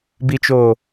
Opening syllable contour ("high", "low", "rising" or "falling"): low